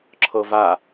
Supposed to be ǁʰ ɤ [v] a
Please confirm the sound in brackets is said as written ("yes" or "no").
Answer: yes